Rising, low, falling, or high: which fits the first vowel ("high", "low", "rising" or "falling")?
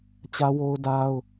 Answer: high